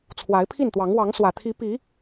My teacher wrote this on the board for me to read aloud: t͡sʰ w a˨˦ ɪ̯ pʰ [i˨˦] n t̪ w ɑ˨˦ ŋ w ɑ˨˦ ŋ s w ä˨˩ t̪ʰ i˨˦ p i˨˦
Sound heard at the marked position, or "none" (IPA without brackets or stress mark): i˥˨